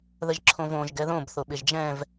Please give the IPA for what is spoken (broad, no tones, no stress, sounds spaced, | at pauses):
ð ə ʒ ǁʰ õ v õ ʒ ɡ ɛ ð õ b θ o ɓ ɪ ʒ d͡ʒ ɛ̃ v